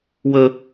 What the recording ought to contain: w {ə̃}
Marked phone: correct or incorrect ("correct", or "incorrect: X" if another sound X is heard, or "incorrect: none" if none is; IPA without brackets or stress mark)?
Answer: incorrect: ə